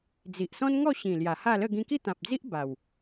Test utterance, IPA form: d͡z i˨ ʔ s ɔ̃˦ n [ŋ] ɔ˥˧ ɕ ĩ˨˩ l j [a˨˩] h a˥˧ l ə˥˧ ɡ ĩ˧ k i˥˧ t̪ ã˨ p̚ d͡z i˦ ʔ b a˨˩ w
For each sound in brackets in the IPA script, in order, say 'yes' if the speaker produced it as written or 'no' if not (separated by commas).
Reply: yes, yes